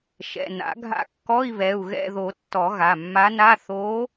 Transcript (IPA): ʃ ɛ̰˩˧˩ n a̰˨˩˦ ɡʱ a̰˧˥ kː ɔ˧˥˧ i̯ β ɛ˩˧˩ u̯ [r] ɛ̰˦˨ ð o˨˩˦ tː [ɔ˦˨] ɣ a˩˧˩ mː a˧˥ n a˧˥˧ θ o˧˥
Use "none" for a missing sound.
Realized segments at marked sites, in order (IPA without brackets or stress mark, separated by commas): ɣ, ɔ˨˩˦